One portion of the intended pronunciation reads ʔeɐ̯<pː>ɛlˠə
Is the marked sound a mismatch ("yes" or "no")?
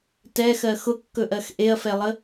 yes